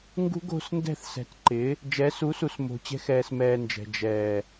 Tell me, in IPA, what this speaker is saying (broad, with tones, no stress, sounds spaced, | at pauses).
ŋ ɡ ṳ˦ ɡ o̤˧ s n d ɛ̤˦˨ θ s ɛ̤˨ t ǃ ɪ˨˦ | d͡ʒ ɛ˨˦ s u˨˦ s u˨ s m o̤˨ t͡ɕ ɛ̤˧ x ɛː˨ s m ɛː˧ n d͡ʒ ɛ̤˨ d͡ʒ ɛː˨